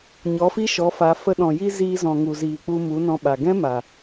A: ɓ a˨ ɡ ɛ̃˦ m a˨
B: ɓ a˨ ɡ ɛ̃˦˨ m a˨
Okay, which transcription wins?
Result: A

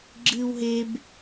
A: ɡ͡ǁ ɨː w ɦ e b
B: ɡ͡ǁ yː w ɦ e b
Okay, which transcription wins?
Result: A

